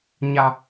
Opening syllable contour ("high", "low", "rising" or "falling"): high